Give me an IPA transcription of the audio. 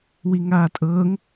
w i ŋ aː tʼ ɤː ŋ

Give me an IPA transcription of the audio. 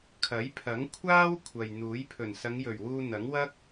kʰ ɐ˨˥ j pʰ ɐ˨˥ ŋ kʷʰ aː˥ w kʷʰ ɐ˨ j n̪ uː˨˥ j pʰ ɵ˨˩ n s ɐ˨˧ ŋ j ɵ˨˩ ɥ w uː˧ n̪ ɐ˨˥ ŋ w ɐ˥ k̚

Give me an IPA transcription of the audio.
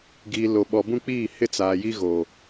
ɡ iː˨ l o˨ ɓ ɔ˨ b ũ˦ k͡p iː˦˨ h ɪ˦ t͡s aː˨ j i˦ ɣ o˨

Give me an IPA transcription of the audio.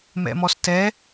m ɛ̰ m ɔ s t ɛ

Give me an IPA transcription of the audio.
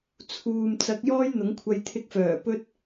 t͡sʰ uː˨ m t͡s ɐ˨˥ k̚ j ɔː˥ j n̪ ʊ˨˥ ŋ kʷʰ ɐ˧ j t̪ʰ ɪ˧ k̚ f œː˨˩ p ɵ˥ t̚

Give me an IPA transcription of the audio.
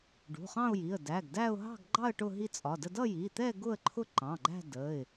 ɖ ṳ˩˧˩ χ ɑ̃˥˧ ʊ̯ j i˩˧˩ ə̯ d æ˩˧˩ ɡ d æ˥˧ ʊ̯ ɦ ɑ̤˥˧ ɡ ɡ͡ǃ ɑ˥˧ ə̯ ʈ ʊ˥˧ ɦ i˥˧ t͡sʼ ɒ˩˧˩ d ə˥˧ d ʌ˥˧ j i˩˧˩ t̪ ɛ˥˧ ɡ ʊ˥˧ ə̯ ǃʰ ʊ˥˧ ǃ ɑ̃˩˧˩ ɡ͡ǃ æ̤˥˧ d ə˩˧˩ ɪ̯

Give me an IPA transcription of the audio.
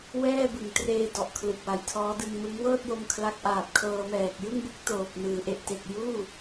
w ɛː˥˩ b ɯ˨˩ ŋ t r eː˧ d ɔ˨˩ ʔ kʰ l ɯ˨˩ k̚ w a˨˩ j tʰ ɔː˦˥ d ɯ˧ ŋ m ɯ˦˥ ŋ w ɤː˥˩ t̚ j o˧ m kʰ l a˦˥ k̚ ʔ aː˨˩ p̚ kʰ ɤː˧ m ɛː˨˩ k̚ j ɯ˥˩ ŋ b u˦˥ k̚ t oː˨˩ p̚ n ɯː˩˦ ʔ e˨˩ ʔ t e˨˩ k̚ j uː˥˩

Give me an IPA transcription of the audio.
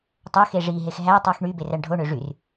tˤ ø x e ʐ i ɦ e x ɦ æ tˤ y x ɳ y b e r æ ɳ ɖʱ o ɳ ø ʐ y r

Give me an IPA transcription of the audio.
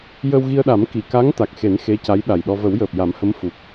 j ə˧ w ɣ i˧ ə̯ ɗ a˨˩˦ m k i˨˩˨ k a˧˥ ŋ t̪ a˨˩ k̚ x e˨˩˦ n x e˧˥ c a˧˥ j ɗ a˨˩ j ɗ ɔ˧ v ə˨˩˦ w j əː˨˩ p̚ j a˨˩˦ m h ə˧˥ m f u˨˩ k̚

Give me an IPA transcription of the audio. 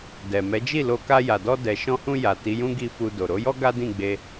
d ɛ˨ m ɛ˨˦ d͡ʒ i˦˨ l o˧ k a˧ j a˨ d ɔ˧ d ɛ˨ ʃ ɔ̃˧ h ũ˧ j a˨ t i˨˦ j ũ˦ ɡ i˦˨ f u˧ d o˨ ɾ o˨˦ j ɔ˦ ɡ a˦ d ĩ˦˨ ɡ͡b e˧

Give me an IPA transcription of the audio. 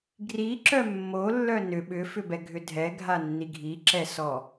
ɡ r i ǁ œ mː o lː œ n ʏ ɓ ʏ f ʏ b ɛ ɡʱ ʏ dʱ ɛ ɡʱ a nː i ɡʱ i ǁ ɛ s ɔ

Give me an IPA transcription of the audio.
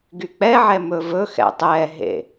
ɡ y k͡p ɛ ʕ ɛ m ɵ v ɵ x ɛ̰ tˤ ɛ ɦ ḛ

